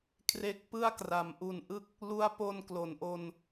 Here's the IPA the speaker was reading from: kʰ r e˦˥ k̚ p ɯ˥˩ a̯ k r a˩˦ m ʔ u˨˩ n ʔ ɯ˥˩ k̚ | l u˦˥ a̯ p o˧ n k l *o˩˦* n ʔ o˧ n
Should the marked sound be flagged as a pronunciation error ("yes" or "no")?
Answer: no